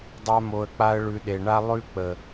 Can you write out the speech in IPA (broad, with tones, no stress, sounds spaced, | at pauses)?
dˤ a˧ m o˨ ə̯ k͡p a˧ ə̯ ɭ ʉ˧ ɗ e˨ ɳ a˦ lˠ ʉ˦ k͡p ə˨